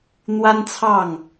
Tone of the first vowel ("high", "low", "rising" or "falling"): high